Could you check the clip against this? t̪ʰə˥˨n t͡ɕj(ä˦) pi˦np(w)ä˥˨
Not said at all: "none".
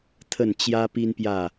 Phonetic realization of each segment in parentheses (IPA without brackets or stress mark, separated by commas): ä˦, j